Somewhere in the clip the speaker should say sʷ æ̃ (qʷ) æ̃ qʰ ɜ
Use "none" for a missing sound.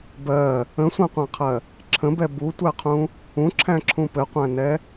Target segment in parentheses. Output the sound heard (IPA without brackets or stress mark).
qʷ